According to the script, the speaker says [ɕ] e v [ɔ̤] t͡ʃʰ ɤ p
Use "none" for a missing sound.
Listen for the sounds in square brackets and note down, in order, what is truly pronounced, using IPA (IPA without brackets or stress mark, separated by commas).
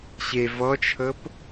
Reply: ɕ, ɔ